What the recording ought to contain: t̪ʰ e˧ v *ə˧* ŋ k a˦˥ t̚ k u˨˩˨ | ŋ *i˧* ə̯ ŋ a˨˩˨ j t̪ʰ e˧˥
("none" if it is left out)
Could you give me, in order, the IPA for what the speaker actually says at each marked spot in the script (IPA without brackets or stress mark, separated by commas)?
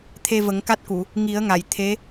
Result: ə˨˩˦, i˨˩˦